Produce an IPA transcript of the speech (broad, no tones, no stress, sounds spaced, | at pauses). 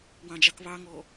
w ɑ̃ d͡ʒ ɑ k β ɑ ŋ ɔː